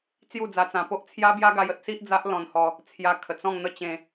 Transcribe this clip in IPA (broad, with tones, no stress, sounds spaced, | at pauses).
t͡s j u˥˧ d͡z a˧ t͡s ã˧ p o˦ ʔ t͡sʰ j a˦ b j a˦ ɡ a˧ j ə˦ t̚ s i˦ ʔ d͡z a˦ ʔ l ɔ̃˧ n h ɔ˧ | t͡sʰ j a˧ kʰ ə˨˩ t͡s ɔ̃˥˧ ŋ n̪ ə˥˧ t͡ɕ ẽ˧